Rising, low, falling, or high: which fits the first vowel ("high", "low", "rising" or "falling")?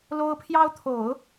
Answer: high